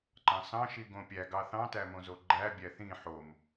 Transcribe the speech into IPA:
ǃɑ̃sɑ̃ ʃiɡõpʲæ ɡɑθɑ̃tæmõ zoɡ͡ǃæbʲæ θĩ ħom

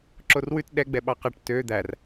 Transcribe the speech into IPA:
ǁorwʉt ɗɛ ɡ͡bɛɓɑqɑʈ tø d̪ær

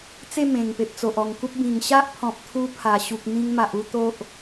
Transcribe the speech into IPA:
t͡se˥˧ mẽ˨˩ŋ pe˨p̚t͡so˨ʔ ɔ˨˩ŋku˦p̚ bĩ˨˩ŋɕa˦ʔpʰɔ̃˨p̚t̪ʰu˧ pʰa˨˩ ɕu˨k̚mĩ˧ŋma˨ʔu˥˧ t̪o˦ʔ

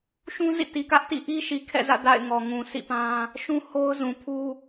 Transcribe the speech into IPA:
ʃũ˦zḭ˦˨ ti˨kä˦ʔtḭ˦˨ ʔi˦ʃi˨kʰɛ̰˦˨zä̰˦˨ da̰˦˨ɪ̯ŋɔ˨ ŋũ˨sʰḭ˦˨pã˦ | ʃũ˦ho˦ʊ̯zũ˨ pʰu˦

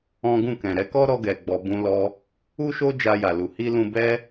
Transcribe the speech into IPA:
ɔ̃˦ ɡũ˦˨kɛ̃˨ɾɛ˨˦ kɔ˦ɾɔ˧ɡɛ˨ ɡ͡bɔ˧bũ˦lɔ˦ | u˦ʃo˦ d͡ʒa˧ja˨lu˨ hi˧ lũ˧bɛ˦

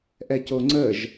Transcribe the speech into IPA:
ʔɛcoŋ͡ǀəʒ

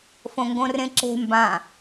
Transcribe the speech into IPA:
fõŋɡõrẽǁe̤ mbã

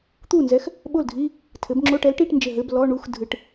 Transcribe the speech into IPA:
t̪u˥˩nzɛ˨˥x | ɓo˥˩ldʱi˧˥˧ | tʰɘ˩˧bŋ͡ǁo˧˥˧ʈɛ˨˥lʈi˧˥˧ʈ nd͡ʒɘ˧˩ɦɘ˧˥˧b lɔ˧˥˧ɳu˧˥˧x dʱɨ˩˧ʈ

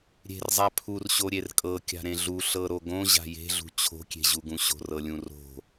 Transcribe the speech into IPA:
ɾʲe̤rzˤa pʰurɕo ɾʲerkʼɤ kʲa̤ɾẽɮu ɬɤɾoɡõ ʑa̤je̤ɮṳ t͡ɕʰo̤kʲe̤ʑuɡũ ɕo̤rɤlʲũro̤

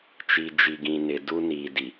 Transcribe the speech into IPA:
t͡ʃi˨d͡ʒi˨ɡĩ˨ nɪ˨du˦niː˨ di˨

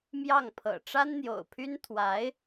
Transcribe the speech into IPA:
mjɑ˥˩ŋpʰɤ̰˨˩ ʈ͡ʂa˥nn̪jo̰˨˩ʊ̯pʰy˥n t̪ʰwa˧˥ɪ̯

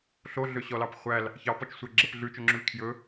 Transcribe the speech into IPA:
ɬoɮøɕɔlɑp χʷæl | çɑpɔt͡ʃsʷɛɡ͡ǁɛp ɮʉt͡ʃɵŋ͡ǁʉl kʰjɵ

